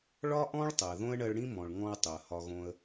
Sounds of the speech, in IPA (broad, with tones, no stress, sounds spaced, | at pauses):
ɭ ɒ˦ ʔ ɔ̃˦ ɭ tˤ ɪ˨ ə̯ ð õ˦ ə̯ ɳ ɜ˧ ɭ ɽ ĩ˦ m ɔ̃˨ ɭ ŋ ɔ̃˧ ə̯ tˤ ɪ˨ ə̯ h ɒ˧ ɣ õ˧ ə̯